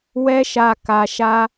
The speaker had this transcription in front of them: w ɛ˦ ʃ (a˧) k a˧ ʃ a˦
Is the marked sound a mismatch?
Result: no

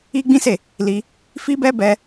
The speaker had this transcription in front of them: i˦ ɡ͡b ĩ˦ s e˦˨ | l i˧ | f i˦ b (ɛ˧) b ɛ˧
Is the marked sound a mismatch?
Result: yes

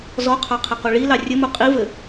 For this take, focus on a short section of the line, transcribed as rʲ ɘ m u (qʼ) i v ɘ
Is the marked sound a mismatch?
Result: no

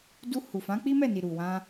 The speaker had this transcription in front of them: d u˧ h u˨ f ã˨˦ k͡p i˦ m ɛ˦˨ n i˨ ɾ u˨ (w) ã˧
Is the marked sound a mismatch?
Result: no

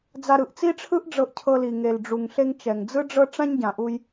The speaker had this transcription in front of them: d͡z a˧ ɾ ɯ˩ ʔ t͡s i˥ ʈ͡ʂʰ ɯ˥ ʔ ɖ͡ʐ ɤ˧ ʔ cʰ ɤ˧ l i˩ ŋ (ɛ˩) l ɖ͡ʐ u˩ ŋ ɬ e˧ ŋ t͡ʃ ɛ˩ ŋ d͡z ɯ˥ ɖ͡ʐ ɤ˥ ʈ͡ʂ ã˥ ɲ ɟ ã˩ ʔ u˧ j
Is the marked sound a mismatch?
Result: yes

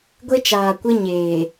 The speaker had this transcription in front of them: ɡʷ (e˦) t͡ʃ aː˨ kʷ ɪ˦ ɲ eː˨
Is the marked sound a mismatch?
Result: no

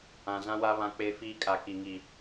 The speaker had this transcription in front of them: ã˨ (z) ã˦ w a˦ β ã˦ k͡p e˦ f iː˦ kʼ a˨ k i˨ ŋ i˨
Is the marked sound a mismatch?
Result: no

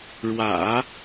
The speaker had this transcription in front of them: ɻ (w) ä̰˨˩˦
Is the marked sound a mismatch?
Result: no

